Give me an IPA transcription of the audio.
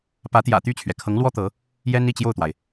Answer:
p ä˧˥ t̪ j ä̰˨˩ t̪ y˥˩ t͡ɕʰ ɥ ɛ˩ kʰ ɤ˧˥ ŋ l w ɔ˥ t̪ ɤ˧˥ | j ɛ˥ n i˥˧ t͡ɕ j o˥˩ ʊ̯ t̪ w a˩ ɪ̯

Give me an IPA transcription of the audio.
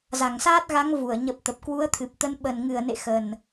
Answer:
z a˧˩ ŋ s aː˦˥ t̚ ɣ a˨˦ ŋ v u˧˩ ə̯ ɲ ə˨˩ p̚ t̪ ə˨˩ p̚ k w u˨˦ ə̯ t̪ʰ ɨ˨˩ p̚ t̪ ə˨˦ n ɓ ə˨˩ n ŋ ɨ˧˩ ə̯ n ḛ˧˨ x ə˨˩ n

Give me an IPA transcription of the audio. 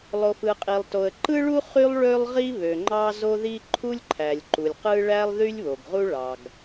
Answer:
lˠ o˩ f ɯ˩ qʼ i˩ lˠ t o˩ ə̯ ǃ ɯ˥ ɭ u˥ χ y˥ lˠ ɭ ø˥ lˠ ʁ i˥ β ø˩ ŋ͡ǃ ɑ˥ z o˥ ð i˥ ǃʰ u˥ lʲ ǃʰ æ˩ lʲ ǃ u˩ lʲ q ɯ˥ ɭ æ˥ lˠ ð y˥ lʲ β o˩ ɡ ʁ u˥ ɭ ɑ˩ ɡ

